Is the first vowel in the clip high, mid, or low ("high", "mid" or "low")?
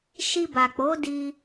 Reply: high